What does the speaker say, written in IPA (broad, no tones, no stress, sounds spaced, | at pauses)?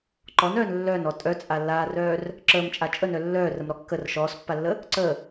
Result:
ǃ ɔ n œː n lː œ n ɔ tʼ œ t͡sʼ a lː aː r œː r | ǁ əː m t͡ʃʼ a t͡ʃʼ ə n œ lː œː r ə m ɾ ɔ kː ə r ʃ ɔː s pː a lː ə | ǀ ə